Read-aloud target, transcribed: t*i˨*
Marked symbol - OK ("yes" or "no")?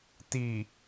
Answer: yes